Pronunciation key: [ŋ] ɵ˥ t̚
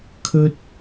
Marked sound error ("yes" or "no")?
yes